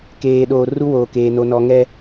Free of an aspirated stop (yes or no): yes